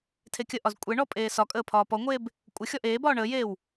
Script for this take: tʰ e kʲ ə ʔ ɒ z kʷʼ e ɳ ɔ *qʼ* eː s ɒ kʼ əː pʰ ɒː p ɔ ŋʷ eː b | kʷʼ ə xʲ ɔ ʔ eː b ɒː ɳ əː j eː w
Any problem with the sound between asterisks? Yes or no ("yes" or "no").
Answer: yes